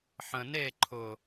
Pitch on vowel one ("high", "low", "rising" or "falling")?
low